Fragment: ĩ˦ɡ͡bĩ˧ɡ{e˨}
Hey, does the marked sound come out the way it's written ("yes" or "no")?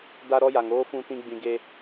no